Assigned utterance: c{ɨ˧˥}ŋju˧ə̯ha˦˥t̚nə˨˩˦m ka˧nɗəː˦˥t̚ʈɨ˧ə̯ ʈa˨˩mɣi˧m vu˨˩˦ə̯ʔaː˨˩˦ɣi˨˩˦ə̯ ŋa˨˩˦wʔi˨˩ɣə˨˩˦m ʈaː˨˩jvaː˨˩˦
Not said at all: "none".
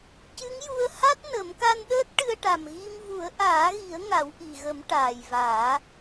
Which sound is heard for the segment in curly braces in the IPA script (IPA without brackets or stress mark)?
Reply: ɨ˧˥